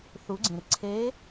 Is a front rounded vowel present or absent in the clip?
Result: absent